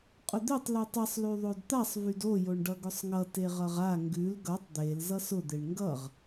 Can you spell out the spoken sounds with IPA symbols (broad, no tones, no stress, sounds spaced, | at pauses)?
qʼ ʊ d̪ e tˤ l ʉ tˤ ʌ sˤ l y ðˤ o d t̪ a sˤ v y d o j o ɳ ɖ ʌ ɡ ʊ sˤ ŋ ʌ t e ʁ ʌ ʁ a ŋ ɡ ʉ l ɡ ʌ tˤ d̪ e l z ʌ s ʊ d̪ e ɳ ŋ ɡ ʌ ʁ